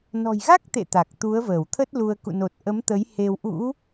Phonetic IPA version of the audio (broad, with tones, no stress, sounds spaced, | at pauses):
n ɔ̤˨˩ j ɣ a˦˥ k̚ t̪ ḛ˧˨ t̪ a˨˩ k̚ t̪ u˨˦ ə̯ v əː˧˩ w t̪ʰ ə˦˥ t̚ l u˧ ə̯ k ṵ˧˨ n o˨˩ t̚ ʔ ə˨˦ m t̪ ə˨˦ j h e˧ w ʔ ṵ˧˥